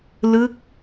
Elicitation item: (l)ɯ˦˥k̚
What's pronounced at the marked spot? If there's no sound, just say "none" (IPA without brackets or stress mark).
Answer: l